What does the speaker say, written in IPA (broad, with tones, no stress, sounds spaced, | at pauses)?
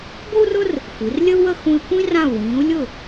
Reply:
ɡʷ ə˥ u̯ r ʊ˥ r | xʷ i˩˧ r lʲ ə˥ u̯ w ə˥˧ x ũ˧ i̯ kʷ ĩ˥ r ã˧˩ u̯ w ĩː˩˧ u̯ lʲ ʊ˧˩